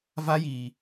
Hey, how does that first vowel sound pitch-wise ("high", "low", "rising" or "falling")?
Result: high